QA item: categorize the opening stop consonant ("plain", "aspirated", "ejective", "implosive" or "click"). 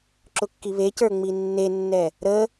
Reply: click